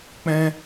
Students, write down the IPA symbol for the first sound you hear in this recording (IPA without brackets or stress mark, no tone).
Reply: k͡p